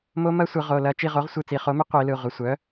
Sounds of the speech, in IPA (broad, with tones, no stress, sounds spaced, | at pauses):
m o˦˥ m ɐ˦˥ sʷ ɯ˨˩˦ ʁ o˩˧˩ l ɐ˦˨ t͡ʃ i˦˨ ʁ o˩˥ ʁ sʷ ɯ˦˨ t͡s i˨˩˦ χ o˩˥ m ɪ˦˥ qʷ i˨˩˦ l ɯ˩˧˩ ʁʷ ɪ˩˧˩ sʷ œ˩˥